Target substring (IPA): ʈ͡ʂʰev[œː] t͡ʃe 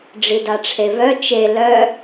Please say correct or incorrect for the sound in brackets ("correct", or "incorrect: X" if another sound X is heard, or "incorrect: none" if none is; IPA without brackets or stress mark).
incorrect: œ